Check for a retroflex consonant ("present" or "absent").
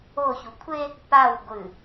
absent